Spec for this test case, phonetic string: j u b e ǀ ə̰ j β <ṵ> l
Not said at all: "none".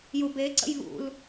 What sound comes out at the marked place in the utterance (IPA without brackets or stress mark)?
ṵ